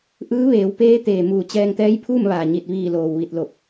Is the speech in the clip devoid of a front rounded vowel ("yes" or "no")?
yes